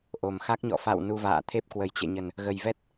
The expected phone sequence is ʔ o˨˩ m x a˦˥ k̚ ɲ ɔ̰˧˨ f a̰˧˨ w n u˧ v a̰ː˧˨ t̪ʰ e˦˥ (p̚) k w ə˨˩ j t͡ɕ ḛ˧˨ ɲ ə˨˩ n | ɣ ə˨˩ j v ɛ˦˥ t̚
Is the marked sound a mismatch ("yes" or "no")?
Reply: no